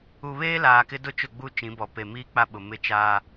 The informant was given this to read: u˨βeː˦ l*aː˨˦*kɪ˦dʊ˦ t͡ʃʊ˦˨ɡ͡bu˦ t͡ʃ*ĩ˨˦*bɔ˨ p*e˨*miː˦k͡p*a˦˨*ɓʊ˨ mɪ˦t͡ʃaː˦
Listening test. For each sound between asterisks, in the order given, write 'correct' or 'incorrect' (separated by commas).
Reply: incorrect, correct, correct, incorrect